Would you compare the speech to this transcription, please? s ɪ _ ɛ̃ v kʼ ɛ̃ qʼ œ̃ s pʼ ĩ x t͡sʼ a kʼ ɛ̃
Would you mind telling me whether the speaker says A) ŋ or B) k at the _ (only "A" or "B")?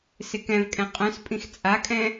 B